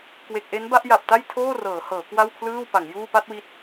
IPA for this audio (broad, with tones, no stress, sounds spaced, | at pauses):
k w e˨˩ k̚ ʔ e˦˥ n b a˥˩ ʔ j a˨˩ p̚ t a˥˩ j tʰ oː˥˩ r ɤː˩˦ h ɤː˩˦ k w a˥˩ w kʰ l ɯː˥˩ w p a˩˦ ŋ j uː˥˩ p a˥˩ t̚ w i˦˥ t̚